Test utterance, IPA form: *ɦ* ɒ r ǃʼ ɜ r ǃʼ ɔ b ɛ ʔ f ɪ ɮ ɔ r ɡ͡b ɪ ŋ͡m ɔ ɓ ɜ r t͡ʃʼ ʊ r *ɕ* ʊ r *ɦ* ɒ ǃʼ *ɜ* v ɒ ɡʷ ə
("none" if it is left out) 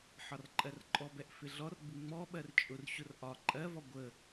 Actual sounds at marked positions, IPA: ħ, ɕ, ʔ, ɜ

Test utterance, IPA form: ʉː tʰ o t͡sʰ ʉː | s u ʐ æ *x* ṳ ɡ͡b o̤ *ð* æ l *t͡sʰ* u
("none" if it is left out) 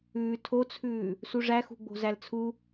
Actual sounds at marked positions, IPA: x, z, t͡sʰ

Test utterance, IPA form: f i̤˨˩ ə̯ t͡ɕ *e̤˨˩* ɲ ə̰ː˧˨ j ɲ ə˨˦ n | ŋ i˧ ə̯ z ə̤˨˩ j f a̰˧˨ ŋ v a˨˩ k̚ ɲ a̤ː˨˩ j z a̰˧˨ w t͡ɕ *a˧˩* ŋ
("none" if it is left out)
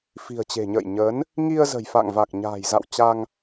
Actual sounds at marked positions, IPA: e̤˨˩, a˧

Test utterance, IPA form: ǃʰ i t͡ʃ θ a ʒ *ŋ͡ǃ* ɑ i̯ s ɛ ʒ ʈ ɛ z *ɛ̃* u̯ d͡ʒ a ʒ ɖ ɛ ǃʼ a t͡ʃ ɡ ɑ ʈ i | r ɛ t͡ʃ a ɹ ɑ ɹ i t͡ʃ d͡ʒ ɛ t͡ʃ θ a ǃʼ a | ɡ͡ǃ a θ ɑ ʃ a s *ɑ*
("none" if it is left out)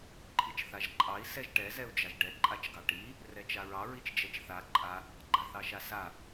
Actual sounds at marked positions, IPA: ǃʼ, ɛ, a

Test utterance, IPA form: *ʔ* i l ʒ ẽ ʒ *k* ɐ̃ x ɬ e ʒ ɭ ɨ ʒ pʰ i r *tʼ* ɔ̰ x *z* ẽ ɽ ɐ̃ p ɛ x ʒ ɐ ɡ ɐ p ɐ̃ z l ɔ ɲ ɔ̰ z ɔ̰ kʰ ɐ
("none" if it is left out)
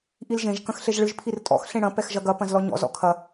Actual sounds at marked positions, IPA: ʔ, k, tʼ, ɬ

